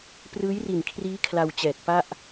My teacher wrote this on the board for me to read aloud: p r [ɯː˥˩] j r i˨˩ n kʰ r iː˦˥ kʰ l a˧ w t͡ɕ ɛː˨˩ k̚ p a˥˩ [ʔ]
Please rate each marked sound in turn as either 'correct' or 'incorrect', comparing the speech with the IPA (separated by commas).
incorrect, correct